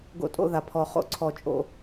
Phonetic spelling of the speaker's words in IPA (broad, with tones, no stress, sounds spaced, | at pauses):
ɡ o̰˦ tʼ o̰˦ ð a˨ pʰ ɔ˨ χ o̰˨ ǀʰ ɔ˨ t͡ʃʼ o̰˦